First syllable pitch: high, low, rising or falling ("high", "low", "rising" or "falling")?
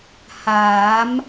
rising